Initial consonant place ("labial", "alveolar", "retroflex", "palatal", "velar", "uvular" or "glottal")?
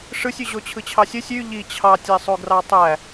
retroflex